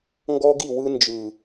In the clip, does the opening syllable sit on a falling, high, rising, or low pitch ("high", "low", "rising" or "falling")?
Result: high